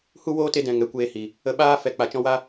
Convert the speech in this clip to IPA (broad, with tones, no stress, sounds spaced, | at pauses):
h u˦ w oː˦ t e˧ d ɛ̃˨ ŋ ɛ˨ kʷ eː˧ h i˨ | ə˧ ɓ aː˦ f ɛ˨ k͡p a˨ t͡ʃ ɔ̃˧ w a˦